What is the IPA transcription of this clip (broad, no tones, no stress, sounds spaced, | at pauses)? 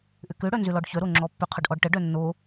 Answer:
ʔ ʏ k ø ɽ œ n z ʏ l ɔ ɖ ç œ ɾ o ŋ͡ǁ ɔ pː ʏ qʰ ʊ ɖ ʔ ɔ ɖ ʈ ə ɖ œ nː o